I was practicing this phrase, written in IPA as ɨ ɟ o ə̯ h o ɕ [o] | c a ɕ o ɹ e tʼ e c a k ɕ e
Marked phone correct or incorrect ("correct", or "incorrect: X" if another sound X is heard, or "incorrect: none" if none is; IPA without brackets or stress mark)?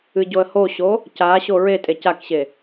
correct